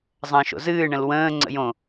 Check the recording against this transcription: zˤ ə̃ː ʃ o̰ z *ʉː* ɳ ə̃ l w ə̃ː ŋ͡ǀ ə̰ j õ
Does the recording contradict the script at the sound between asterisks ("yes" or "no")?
yes